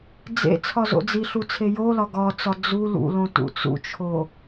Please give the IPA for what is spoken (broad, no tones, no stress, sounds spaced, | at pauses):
d͡z ḛ t͡sʰ ɒ z o̰ d͡z i ɬ u t͡sʰ e j o l ɒ ɡ ɒ t͡s ɒ d͡z u l ṵ l õ t ṵ t͡s ṵ t͡ʃʰ o